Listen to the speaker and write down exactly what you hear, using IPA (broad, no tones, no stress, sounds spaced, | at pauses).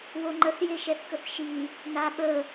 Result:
w o ŋ͡ǃ ə θ j e ʃ ɛ θ k ə θ ʃ i | n a ɓ ə